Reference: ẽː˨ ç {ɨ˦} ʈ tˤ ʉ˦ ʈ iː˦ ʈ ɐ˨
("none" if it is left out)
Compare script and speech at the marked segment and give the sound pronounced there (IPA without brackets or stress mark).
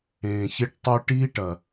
e˦